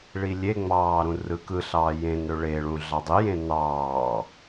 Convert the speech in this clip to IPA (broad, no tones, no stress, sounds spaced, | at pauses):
ɭ i lʲ e ŋ͡m ɑː ɾ ũ r ɯ k ɯ ɬ ɑː j ẽ n ɾ ø ɭ e ɭ ũ ɮ ɑ dˤ i j ẽ n ɑː